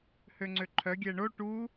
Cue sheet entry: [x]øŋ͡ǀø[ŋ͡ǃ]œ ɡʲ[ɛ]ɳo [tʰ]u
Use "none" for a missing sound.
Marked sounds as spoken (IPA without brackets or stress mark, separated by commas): h, ǃʰ, ɛ, ʈ